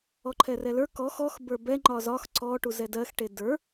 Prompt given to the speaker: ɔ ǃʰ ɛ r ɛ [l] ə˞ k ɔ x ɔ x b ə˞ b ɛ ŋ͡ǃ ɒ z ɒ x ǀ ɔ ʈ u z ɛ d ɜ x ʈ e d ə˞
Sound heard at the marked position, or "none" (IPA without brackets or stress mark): l